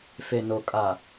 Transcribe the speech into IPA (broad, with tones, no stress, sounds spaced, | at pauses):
f e˨ n o˨ kʼ aː˨